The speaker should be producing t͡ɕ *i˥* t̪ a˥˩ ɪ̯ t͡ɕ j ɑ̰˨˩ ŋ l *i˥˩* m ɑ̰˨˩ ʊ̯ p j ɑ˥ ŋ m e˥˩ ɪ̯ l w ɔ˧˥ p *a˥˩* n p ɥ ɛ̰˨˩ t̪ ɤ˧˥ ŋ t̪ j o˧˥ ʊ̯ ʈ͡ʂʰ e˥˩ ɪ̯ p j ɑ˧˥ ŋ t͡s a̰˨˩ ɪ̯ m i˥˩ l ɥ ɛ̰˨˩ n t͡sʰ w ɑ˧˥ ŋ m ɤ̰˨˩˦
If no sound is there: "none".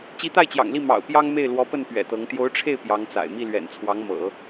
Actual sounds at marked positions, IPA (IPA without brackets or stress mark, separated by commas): i˧˥, i˥˩, ə˥˩